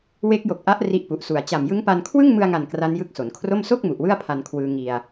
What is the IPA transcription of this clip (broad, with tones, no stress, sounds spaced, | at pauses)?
w e˦˥ k̚ j o˨˩ k̚ ʔ a˦˥ ʔ r i˦˥ ʔ p u˨˩ ʔ s u˨˩ a̯ t͡ɕ a˨˩ m j ɯ˦˥ ŋ p a˧ n kʰ w ɯ˥˩ ŋ m ɯ˧ a̯ ŋ a˨˩ n k r a˦˥ n j ɯ˦˥ k̚ s o˩˦ n kʰ r o˥˩ m s o˥˩ k̚ m u˨˩ ʔ w ɯ˥˩ a̯ pʰ a˧ n kʰ w ɯː˧ ŋ i˧ a̯